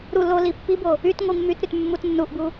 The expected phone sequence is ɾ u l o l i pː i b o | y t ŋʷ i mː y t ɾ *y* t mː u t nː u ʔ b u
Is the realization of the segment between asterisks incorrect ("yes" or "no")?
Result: no